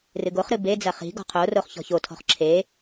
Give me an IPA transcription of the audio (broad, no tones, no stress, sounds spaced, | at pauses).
r ɨ ɡ o χ ɾ ɨ b e d͡z ɐ χ i̤ ɡ ɔ̤ qʰ o r o χ ç ɔ̤ ç o tʰ ɔ̤ χ ǁʰ e